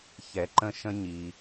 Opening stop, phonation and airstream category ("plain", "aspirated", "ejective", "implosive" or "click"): click